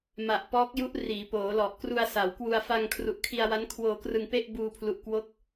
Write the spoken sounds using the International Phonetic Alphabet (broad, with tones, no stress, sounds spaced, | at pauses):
m a˨˩ ʔ p ɔː˦˥ k̚ j u˦˥ ʔ r iː˩˦ p oː˩˦ l ɔ˨˩ ʔ k r u˧ a̯ s a˩˦ w k w u˧ a̯ f a˧ ŋ kʰ r u˨˩ ʔ kʰ i˧ a̯ w a˦˥ n kʰ w oː˧ k r ɯ˧ ŋ p e˥˩ ʔ b uː˧ pʰ l u˨˩ ʔ k w o˦˥ k̚